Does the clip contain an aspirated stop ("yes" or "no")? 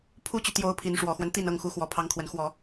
yes